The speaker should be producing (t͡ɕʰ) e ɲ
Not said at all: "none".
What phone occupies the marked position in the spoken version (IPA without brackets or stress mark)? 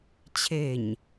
t͡ɕʰ